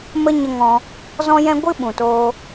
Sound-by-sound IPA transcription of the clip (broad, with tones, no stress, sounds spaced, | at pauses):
m ə˦ ɲ ə˧ ŋ ɔ̃˧ | z ɔ̃˦ j ɛ̃˦ ɡʷ ɨ˦ ɓ ũ˨ t oː˧